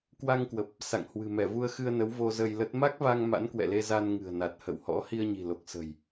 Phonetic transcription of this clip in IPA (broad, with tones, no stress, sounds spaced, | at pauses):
k w a˧ ŋ k w ə˨˩ p̚ | s a̰˧˨ ŋ h w ɨ̤˨˩ m ɛ˧˩ v u˧ ə̯ x ɨ˧ ə̯ n ə˨˦ w v o˧ z ə˧ j l ə˦˥ t̚ m a˦˥ k̚ v a˧ ŋ m a̰˧˥ n k w ɛ̰˧˨ l e˧ z a˧ n ŋ ɨ̤˨˩ ə̯ n a˨˩ t̚ h ə̰˧˨ w h ɔ̰˧˥ h i˧ ə̯ ɲ i̤˨˩ l o˨˩ k̚ s ə̤˨˩ j